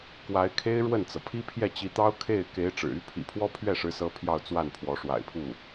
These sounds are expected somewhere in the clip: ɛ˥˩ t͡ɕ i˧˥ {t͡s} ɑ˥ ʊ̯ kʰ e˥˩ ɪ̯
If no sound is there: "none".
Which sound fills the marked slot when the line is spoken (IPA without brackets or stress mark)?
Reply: t̪